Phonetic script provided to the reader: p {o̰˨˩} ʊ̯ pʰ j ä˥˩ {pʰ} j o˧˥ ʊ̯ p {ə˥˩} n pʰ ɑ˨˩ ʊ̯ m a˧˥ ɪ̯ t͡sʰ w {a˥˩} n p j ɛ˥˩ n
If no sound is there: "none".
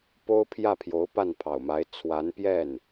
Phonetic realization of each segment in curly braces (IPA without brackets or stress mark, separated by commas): o˥, pʰ, a˥˩, a˧˥